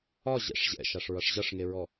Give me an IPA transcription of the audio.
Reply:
ɒ ʑ ɛ̰ ʂ ʑ ɛ̰ ʃ a ʂ ɹ ʌ ʂ ʑ ʌ ʂ ŋ e ɹ ɔ

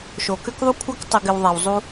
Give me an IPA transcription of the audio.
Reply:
ʃ o˨ k ʏ˦ k ðˤ u˦ kʷʰ ə˦ k tˤ ɪ˧ ɡ ɪ˧ w ðˤ a˧ w zˤ u˦

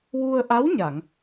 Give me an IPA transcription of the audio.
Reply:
w u˧ ə̯ ʔ a˧˥ w ɲ a˨˩˨ ŋ

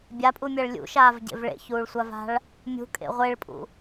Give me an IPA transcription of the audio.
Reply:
bʲ a pʼ u mʲ ɜ ɭ lʲ ṵ ʃ aː v ɟ ḛ v ɭ ḛ ç uː ɭ sʷ a v a̤ ɭ | mʲ ṳ kʼ ḛ ʁʷ e ɭ pʼ ṵ

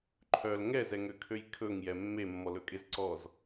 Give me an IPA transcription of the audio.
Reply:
ǃʰ œ l ŋ ɛ z ɛ ŋ ø kʰ ø j kʰ ɵ ŋ j ɛ mː e mː ɔ l ɵ kʼ e z ǀ ɔ z

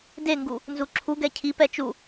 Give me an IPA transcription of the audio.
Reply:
d e ŋ ɡ u | n z u ǁʰ u ɡ ɛ cʰ i p ɛ t͡ʃ u

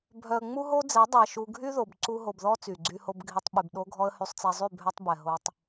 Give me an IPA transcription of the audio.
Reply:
bʱ œ˨ ə̯ ŋ͡m u˦ ɦ o˦ d͡z ɛ˨˦ dˤ ɛ˨ ʃ u˦ ɡʱ y˦ ð o˨ b ǀ u˦ ɦ o˨ b ð ɔ˦ t͡s y˨ ɡ͡ǀ y˦ h o˦ b ɡʱ i˦ tˤ ɓ y˨ b ɗ o˦ ɡʱ ɔ˦ ə̯ h y˨ sˤ t͡s ɛ˨ zˤ y˦˨ bʱ œ˦ tˤ b ɛ˨ ɦ o˦ tˤ

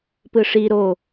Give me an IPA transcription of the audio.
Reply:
p ɯ ʂ i ɾ o

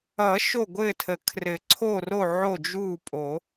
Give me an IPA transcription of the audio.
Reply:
ʌ˨˩˦ ʃ o˥˩ ɡʷ ɘː˥˩ tʰ ə˨˩˦ kʰ r ɘ˨˩˦ ǀʰ o˥˩ r o˥˩ ʕ o˥˩ d͡ʒ uː˥˩ pʼ o˨˩˦

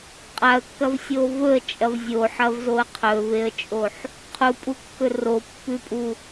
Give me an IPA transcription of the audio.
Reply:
qʼ a ə̯ kː ɐ v sʲ o v ɵ ə̯ t͡ʃʼ ɐ v zʲ o ħ ɐ v z o ə̯ qʰ ɵ v e ə̯ t͡ʃʼ o ħ | qʰ u pʼ u kː ɵ r o pː ʉ pʼ u

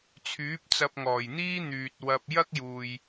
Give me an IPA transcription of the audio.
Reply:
t͡sʰ yː˨˥ p̚ t͡s ɐ˧ p̚ ŋ ɔː˨˩ j n̪ iː˥ n̪ yː˨ t̚ w ɐ˧ p̚ j ɐ˥ k̚ j uː˨ j

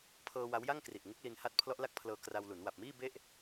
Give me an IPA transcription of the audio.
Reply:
pʰ ɤː˧ w a˦˥ w j a˥˩ ŋ k r i˨˩ ʔ ŋ u˦˥ k̚ l i˧ n h a˦˥ t̚ pʰ l ɔ˦˥ ʔ l a˦˥ k̚ pʰ l ɤː˧ k r a˧ w l u˩˦ n w a˨˩ p̚ m iː˥˩ b e˥˩ ʔ

